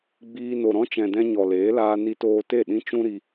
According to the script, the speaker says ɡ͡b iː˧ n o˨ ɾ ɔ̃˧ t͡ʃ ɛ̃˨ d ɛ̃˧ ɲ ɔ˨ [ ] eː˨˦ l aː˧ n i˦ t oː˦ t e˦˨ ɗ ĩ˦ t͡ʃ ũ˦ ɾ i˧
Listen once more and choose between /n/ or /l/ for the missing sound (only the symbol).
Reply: l